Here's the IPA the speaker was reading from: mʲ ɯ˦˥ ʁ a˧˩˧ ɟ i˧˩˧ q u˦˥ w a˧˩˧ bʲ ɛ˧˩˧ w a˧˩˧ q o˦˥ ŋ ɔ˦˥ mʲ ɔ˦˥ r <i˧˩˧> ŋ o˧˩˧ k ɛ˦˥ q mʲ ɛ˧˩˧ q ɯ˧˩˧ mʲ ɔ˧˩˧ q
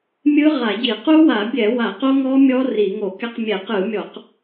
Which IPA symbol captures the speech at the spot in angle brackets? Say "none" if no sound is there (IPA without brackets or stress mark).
i˧˩˧